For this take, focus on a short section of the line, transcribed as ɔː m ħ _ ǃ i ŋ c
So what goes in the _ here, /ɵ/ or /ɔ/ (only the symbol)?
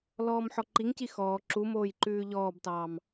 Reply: ɔ